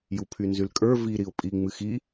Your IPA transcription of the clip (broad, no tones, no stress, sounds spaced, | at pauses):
j u pʰ y n z y l kʼ ə˞ v i ɾ i ʊ̯ pʼ i ŋ͡m ɨ x i